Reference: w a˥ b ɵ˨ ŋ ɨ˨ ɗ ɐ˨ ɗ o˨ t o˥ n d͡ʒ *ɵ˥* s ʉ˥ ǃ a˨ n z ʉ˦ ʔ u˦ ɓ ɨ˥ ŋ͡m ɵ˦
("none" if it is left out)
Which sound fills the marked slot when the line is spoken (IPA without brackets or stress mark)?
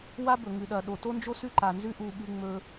o˥